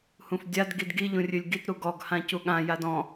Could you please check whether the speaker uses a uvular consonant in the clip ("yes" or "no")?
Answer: no